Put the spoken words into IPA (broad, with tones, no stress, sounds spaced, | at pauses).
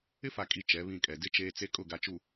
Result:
ɪ˦ f a˨ kʼ i˨ t͡ʃ ɛ˨˦ β ĩ˦˨ kʼ ɛ˨ d ɪ˦ t͡ʃ eː˦ t͡s e˦ kʼ ʊ˦˨ ɡ a˨ t͡ʃ u˨